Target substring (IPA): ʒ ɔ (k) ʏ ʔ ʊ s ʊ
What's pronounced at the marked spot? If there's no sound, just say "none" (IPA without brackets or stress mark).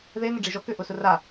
k